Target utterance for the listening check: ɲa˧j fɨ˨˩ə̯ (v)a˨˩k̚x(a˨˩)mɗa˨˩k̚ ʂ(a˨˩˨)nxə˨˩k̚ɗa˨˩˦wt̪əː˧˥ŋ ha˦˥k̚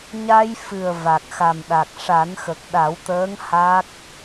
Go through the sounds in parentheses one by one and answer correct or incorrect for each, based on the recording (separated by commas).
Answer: correct, correct, incorrect